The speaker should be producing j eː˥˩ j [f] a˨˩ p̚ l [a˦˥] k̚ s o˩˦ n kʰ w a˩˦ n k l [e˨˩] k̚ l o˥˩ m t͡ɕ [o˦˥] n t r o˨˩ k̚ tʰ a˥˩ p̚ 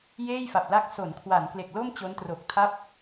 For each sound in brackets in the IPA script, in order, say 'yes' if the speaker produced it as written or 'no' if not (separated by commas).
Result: yes, yes, yes, yes